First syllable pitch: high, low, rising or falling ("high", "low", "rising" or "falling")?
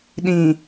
low